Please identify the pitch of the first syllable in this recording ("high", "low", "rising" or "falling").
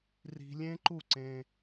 high